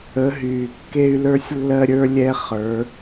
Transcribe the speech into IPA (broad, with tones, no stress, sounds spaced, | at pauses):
ə˨˦ ɦ yː˨ kː e˦ y̯ l ə˞˦ sʲ lː ɜ˦ ɾʲ ə˞˦ lʲ ɛ˦ χ ə˞˨˦